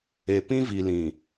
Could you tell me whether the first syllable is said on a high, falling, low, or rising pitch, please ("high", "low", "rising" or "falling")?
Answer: low